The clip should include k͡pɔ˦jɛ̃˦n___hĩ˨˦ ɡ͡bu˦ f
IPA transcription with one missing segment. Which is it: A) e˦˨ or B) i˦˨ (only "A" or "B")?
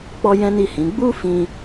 B